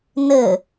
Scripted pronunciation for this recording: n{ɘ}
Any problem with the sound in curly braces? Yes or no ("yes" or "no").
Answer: no